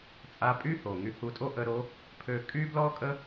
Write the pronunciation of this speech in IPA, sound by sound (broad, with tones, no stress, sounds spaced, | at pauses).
t͡sʼ a˧˥ pʼ y˥ h o˩ ŋ y˧ h u˧ tʼ o˥ ʔ ə˧˥ ɾ o˧˥ | pʰ ø˧ kʼ y˥ b l ɔ˥ kʼ ə˥